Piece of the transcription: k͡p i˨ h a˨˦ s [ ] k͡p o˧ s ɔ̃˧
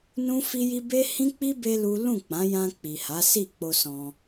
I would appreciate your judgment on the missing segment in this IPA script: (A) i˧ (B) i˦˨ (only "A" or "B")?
B